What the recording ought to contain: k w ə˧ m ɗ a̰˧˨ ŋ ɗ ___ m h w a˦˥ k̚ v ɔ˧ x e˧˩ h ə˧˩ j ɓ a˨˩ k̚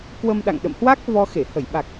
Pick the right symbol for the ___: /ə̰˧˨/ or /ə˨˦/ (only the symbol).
ə̰˧˨